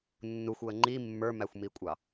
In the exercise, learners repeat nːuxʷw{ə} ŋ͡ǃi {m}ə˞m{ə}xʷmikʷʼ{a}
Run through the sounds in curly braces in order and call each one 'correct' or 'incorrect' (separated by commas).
correct, incorrect, incorrect, incorrect